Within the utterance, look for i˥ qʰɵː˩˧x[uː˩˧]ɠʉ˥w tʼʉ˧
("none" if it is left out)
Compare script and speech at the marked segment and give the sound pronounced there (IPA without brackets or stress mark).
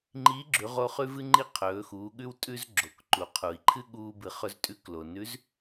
uː˩˧